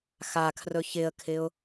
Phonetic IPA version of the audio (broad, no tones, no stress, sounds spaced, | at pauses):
x a kʰ r ɵ ç ɪ ə̯ kʰ ɪ ʊ̯